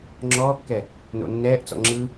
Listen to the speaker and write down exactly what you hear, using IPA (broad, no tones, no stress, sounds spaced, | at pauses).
ŋ͡ǁ ɔː kː ɛ | n o̰ nː ɛː ʔ t͡s ɔ̰ ŋ͡ǁ ɯ